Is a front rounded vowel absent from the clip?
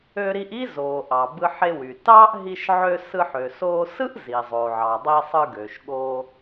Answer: no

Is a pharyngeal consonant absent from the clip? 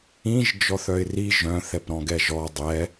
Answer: yes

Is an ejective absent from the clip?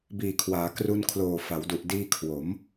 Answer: yes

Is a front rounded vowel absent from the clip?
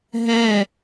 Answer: yes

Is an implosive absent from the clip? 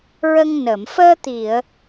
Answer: yes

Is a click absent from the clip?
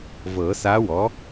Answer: yes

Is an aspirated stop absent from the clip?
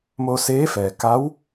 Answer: yes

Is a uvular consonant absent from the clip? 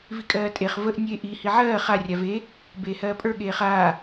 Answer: no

